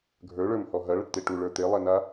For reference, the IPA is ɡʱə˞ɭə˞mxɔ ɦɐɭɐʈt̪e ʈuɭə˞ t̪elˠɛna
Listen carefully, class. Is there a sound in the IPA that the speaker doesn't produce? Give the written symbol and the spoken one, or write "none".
x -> h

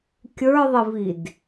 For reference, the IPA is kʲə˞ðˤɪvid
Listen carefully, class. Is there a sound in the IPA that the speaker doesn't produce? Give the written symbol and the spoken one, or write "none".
none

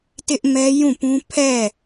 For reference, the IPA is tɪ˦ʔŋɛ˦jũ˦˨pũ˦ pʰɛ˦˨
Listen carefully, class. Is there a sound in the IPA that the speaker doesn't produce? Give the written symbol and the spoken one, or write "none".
ŋ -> m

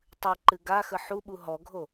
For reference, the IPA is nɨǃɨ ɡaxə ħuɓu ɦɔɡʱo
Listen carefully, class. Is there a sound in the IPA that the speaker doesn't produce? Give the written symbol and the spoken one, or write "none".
n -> tˤ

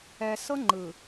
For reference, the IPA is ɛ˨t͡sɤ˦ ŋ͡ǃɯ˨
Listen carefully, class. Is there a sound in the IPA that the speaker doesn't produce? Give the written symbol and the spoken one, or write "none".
t͡s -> s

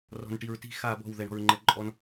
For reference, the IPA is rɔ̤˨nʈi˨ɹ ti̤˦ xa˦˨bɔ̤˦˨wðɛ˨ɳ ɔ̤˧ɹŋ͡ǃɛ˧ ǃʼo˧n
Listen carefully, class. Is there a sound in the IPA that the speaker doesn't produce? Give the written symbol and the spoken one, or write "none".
o˧ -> ɔ˧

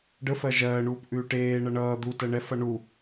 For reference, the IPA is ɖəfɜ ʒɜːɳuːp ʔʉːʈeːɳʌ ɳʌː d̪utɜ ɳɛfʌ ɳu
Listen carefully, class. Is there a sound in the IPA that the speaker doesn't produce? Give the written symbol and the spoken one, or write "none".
none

